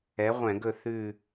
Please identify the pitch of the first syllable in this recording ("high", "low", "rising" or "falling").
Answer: rising